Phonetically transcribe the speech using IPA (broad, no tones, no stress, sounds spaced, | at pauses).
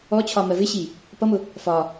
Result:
ɔ t͡ɕʰ ɒ m ɜ v ɪ ɕ i | p ʌ m ʊ | f ɒ